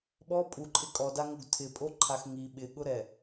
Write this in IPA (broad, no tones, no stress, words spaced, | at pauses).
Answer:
ɓɔ pʼuǃʼɪ kʼɔdaŋoɡ tʰɪpʼoǃʰax ŋi ɓɪɠʊɾɛ